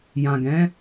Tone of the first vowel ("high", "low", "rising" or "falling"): low